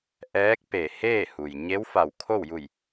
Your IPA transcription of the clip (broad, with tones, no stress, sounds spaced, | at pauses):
ʔ ɛː˧˥ k̚ p e˧˩ h eː˥˨ h u˩ j ɲ e˧˥ w f a˧˩ w kʰ o˥˨ w j u˧˩ j